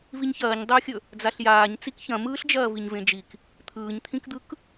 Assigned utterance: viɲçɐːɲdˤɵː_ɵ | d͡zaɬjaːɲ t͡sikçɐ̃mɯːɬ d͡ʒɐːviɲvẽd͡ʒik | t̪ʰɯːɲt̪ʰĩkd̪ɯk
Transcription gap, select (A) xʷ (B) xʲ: B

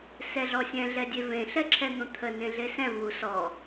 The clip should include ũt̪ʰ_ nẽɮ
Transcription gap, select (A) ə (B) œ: A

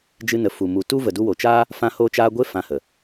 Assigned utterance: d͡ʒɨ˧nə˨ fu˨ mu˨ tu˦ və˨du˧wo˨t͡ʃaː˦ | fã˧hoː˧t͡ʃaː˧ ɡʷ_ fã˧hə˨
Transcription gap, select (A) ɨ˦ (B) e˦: B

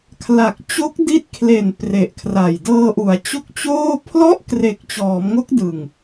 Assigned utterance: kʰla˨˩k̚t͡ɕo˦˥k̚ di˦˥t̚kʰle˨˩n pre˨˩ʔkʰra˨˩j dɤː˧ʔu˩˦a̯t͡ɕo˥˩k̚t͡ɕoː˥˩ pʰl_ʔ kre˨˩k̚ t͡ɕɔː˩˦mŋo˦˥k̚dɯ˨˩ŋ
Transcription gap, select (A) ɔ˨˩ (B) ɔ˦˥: B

